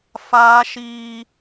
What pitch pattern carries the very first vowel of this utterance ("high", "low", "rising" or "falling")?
high